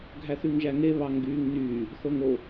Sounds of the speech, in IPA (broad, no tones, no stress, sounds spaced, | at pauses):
ɡʱ æ θ y ŋ ʒ æ ŋ e β ɑ ŋ ɡ yː ŋ n yː | θ o ŋ o